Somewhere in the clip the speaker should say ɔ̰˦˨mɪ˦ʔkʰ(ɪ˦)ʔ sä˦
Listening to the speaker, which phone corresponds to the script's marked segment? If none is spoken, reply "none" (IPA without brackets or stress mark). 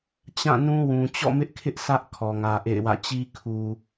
ɪ˦